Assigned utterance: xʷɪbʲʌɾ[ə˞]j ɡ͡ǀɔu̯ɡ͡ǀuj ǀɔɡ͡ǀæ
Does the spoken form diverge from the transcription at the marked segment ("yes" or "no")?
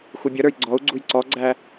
no